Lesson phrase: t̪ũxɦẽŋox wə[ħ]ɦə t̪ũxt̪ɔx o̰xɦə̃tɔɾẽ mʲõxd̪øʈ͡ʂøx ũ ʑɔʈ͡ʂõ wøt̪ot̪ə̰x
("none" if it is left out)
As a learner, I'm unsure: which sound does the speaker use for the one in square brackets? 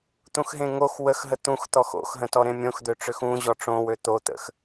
x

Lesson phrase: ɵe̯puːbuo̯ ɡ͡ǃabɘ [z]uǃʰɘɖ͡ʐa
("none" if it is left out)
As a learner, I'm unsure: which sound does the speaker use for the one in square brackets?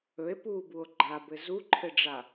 z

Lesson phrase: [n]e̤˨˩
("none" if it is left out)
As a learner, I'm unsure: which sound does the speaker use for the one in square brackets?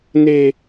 n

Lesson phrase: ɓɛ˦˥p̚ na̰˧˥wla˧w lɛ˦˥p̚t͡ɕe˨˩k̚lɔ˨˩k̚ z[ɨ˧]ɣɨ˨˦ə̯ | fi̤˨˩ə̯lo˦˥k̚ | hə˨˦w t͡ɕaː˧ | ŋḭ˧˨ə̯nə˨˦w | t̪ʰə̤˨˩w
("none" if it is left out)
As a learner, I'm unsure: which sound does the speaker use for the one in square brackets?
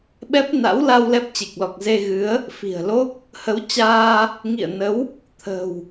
e˧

